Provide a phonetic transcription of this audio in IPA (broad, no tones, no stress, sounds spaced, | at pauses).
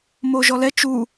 m o ʒ ɔ l ɛ t͡ʃ u